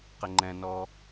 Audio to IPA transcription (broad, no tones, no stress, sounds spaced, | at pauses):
q ɪ ŋ͡ǃ ɛ̃ n ɔː